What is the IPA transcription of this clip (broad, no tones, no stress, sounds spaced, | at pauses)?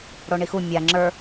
ɽ o ɳ i x u mʲ a ŋ͡ǁ ə˞